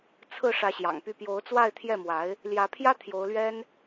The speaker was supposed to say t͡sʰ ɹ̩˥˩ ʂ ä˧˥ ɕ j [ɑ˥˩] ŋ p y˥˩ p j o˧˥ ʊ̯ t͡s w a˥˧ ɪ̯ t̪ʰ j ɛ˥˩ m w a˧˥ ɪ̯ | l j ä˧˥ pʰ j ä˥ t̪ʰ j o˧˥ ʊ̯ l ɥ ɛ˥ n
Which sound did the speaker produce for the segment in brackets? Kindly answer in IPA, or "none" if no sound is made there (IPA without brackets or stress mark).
ɑ̰˨˩